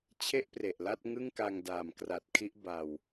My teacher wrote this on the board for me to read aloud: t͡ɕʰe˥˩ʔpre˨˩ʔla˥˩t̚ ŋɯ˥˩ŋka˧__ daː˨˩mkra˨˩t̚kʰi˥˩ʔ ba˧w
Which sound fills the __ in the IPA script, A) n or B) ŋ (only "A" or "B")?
B